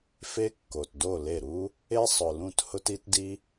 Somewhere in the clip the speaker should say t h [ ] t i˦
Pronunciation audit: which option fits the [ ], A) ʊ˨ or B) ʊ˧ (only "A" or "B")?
B